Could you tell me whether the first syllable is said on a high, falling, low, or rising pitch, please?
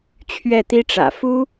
falling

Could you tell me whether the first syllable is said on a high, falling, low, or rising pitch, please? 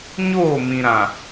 falling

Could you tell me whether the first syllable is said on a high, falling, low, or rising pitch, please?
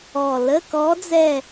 low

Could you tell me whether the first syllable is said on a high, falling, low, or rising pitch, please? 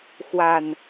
falling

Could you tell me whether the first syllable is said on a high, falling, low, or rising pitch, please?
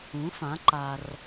rising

